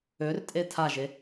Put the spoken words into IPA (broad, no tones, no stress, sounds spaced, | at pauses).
ø r tʼ e tʰ a ʒ e